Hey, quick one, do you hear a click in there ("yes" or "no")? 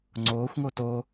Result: yes